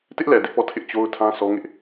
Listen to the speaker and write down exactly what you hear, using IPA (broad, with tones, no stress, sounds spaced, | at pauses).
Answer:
t ɪ˦ ʔ l ɛ˨ d ɪ˦ ʔ p ɔ˦˨ tʰ ɪ˦ ʔ t͡ɕ o˦ ʊ̯ tʰ ã˦ sʰ ɔ˦ ŋ ɪ˦ ʔ